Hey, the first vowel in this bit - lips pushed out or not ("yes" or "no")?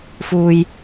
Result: yes